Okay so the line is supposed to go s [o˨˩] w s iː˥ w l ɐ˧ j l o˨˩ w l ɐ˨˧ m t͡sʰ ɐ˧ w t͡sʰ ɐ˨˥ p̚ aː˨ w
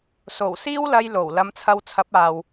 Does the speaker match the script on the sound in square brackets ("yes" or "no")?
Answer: yes